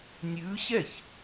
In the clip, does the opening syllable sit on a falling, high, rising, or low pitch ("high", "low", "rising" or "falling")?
rising